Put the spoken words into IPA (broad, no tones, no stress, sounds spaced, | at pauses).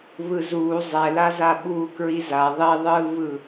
β ɯ z uː zˤ ɛ l a z a ɓ uː k ɹ i z a ðˤ i ðˤ ɯː β ɯ